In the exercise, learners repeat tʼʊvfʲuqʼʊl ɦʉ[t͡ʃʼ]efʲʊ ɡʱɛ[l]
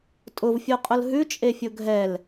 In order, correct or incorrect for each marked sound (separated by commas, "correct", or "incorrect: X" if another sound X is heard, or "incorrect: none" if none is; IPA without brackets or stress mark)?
correct, correct